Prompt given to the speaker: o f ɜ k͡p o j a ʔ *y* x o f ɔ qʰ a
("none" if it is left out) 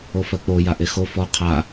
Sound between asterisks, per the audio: e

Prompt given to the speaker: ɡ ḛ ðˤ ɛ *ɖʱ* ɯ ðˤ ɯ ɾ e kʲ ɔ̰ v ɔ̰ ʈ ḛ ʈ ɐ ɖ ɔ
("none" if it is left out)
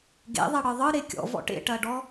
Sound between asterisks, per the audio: ɽ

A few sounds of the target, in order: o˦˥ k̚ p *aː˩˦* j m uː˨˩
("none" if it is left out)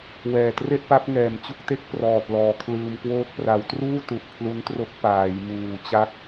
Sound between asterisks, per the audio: aː˩˦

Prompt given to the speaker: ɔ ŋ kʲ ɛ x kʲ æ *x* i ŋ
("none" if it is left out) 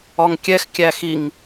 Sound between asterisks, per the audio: x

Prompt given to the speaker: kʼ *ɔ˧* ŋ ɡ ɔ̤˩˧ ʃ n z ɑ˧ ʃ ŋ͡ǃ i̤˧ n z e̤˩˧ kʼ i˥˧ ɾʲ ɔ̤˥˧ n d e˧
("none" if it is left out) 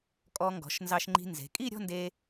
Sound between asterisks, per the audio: ɔ˧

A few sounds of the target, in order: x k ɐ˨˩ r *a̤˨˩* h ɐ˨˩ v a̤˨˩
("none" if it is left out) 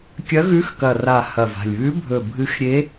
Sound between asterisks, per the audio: a˨˩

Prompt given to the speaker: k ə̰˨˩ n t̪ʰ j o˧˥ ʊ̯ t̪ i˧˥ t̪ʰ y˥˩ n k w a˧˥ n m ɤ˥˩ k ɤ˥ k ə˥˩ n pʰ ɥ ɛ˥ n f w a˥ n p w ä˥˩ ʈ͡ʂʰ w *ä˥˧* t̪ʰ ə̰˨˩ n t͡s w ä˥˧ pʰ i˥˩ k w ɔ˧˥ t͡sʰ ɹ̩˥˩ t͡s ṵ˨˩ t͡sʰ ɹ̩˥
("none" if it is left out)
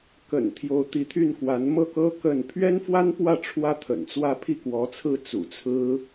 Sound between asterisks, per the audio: ä˥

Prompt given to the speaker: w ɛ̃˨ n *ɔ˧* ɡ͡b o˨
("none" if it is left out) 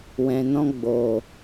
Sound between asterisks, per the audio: ɔ̃˧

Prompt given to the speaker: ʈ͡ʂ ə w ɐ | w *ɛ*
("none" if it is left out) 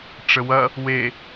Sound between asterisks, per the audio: e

